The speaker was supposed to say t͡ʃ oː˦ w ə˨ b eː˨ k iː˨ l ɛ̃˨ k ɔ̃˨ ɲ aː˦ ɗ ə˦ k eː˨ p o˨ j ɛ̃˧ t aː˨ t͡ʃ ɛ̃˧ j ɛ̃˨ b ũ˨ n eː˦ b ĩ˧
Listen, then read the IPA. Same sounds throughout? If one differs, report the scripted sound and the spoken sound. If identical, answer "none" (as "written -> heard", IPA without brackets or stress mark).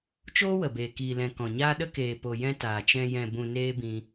none